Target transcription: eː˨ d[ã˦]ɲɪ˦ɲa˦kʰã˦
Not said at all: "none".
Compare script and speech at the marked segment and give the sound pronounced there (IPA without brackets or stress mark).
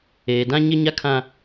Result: ã˦